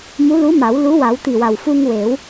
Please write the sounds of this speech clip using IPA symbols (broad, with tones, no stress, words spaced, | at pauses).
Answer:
mu˧˥lu˧˥ma˨˩˦w lu˧˥wa˨˩˦wt̪i˨˩wa˨˩w fu˧ŋwe˨˩˦w